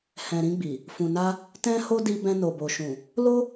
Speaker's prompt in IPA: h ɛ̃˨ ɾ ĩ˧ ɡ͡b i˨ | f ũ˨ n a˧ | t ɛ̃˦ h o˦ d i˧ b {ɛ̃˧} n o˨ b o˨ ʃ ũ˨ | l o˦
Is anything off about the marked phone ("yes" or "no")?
no